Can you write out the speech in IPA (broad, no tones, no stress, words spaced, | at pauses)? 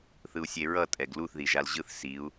θɯu̯sʲeɹʌ tʼɛɡluθ ðiʒalʑɯθ siu̯